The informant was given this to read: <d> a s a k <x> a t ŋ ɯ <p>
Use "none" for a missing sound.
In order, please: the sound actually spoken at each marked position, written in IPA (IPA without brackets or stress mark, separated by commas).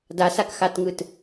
d, x, t